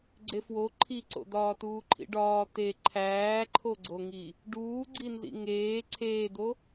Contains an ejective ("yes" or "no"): no